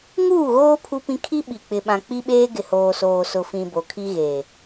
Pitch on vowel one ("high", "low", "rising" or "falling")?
falling